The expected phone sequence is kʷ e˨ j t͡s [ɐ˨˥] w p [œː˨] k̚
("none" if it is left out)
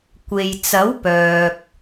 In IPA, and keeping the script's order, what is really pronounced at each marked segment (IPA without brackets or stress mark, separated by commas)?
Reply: ɐ˨˥, œː˨